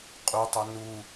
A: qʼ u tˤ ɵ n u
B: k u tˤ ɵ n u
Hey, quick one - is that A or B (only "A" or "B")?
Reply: A